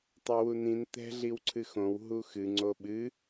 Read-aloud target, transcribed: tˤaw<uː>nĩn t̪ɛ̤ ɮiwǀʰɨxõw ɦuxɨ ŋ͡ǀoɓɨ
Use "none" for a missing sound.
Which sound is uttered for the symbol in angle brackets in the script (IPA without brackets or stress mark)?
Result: u